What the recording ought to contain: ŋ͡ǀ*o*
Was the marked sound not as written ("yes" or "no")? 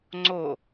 no